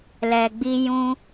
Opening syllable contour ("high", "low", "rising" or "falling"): low